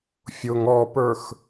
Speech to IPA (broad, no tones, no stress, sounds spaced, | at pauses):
fʲ ʊ ŋ ɔ p ə˞ x